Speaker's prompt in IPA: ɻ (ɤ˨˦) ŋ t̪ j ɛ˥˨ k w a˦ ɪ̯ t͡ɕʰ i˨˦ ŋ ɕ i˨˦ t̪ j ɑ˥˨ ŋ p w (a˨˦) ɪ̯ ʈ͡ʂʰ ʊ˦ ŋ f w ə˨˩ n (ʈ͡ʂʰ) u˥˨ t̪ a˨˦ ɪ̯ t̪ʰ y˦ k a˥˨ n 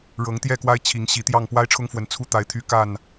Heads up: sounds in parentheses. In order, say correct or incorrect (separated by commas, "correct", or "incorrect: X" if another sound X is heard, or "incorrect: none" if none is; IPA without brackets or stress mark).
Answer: correct, incorrect: a˦, incorrect: t͡sʰ